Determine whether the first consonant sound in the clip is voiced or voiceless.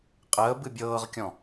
voiceless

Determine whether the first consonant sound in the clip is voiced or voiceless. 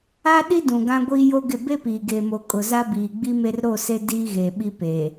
voiced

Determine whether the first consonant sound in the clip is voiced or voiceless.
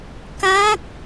voiceless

